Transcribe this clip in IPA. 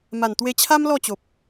ma˨˩nt̪we˧t͡ɕʰa˦m lɔ˥˧t͡ɕo˨p̚

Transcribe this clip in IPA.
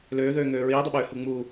løːðøːŋøː ɹiːdˤəɓøːhu ŋ͡mu

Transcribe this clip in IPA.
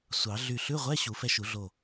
sʷɑ˨˩˦ ɮy˧˩ɬʉ˧˥˧ʁʷɛ˧˥˧ ɕu˨˩˦fɛ˧ʃu˨˩˦ɮo˧˩

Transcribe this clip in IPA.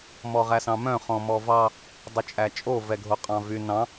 mɔʁæsɑ̃mœ̃ χɔ̃mɔvɑ | dˤʉt͡ʃʼæt͡ʃʼo vɛɡʱoqʼɑ̃vy nɑ̃

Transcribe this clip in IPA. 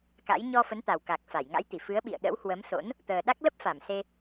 ka̰˧˥j ɲɔ˧fə˨˦nt̪a˨˩wka˨˩k̚ fa˧˩jŋa̰˧˥jt̪i˧˩ fɨ˨˦ə̯ɓḭ˧˨ə̯ ɗə̰˧˥whwə˨˦mso̰˧˥n | t̪əː˨˩ɗa˦˥k̚ lə˦˥p̚ fa˧˩mse˧

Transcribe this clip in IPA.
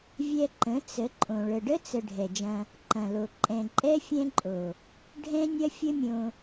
vʲɛ˧ǃə̃˨˦ t͡sə˨˦ ǃʼõ˨ ɭə˨ɖə˦t͡sə˨ ɖʱɛ˨d͡ʒɐ̃˧ | ǃɐ̃˨lo˨ ǃʼɛ̃˨ǃʼɛ˦ fʲɛ̃˦ǃʼo˨ | ɖʱɛ̃˦ nʲɐ˦fʲə˦mʲõ˧

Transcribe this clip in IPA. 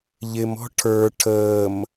ʎɪmɔ̤ ʈʰə˞ ʈʰəːm

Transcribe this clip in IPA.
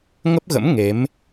ŋə˦˥p̚ɣə̰˧˥m ŋe˨˦m

